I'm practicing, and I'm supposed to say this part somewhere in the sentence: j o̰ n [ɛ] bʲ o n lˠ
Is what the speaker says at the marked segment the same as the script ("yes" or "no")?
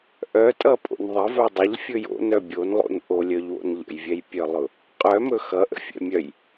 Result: no